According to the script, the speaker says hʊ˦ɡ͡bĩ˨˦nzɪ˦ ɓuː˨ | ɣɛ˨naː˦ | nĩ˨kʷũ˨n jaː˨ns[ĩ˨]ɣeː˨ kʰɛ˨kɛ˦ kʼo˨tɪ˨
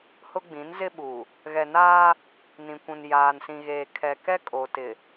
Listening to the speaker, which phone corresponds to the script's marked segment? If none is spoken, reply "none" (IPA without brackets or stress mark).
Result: ĩ˨